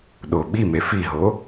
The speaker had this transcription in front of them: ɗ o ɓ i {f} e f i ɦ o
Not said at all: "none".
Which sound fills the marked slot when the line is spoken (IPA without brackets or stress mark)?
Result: m